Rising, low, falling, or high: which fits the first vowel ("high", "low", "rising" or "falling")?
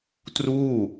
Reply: falling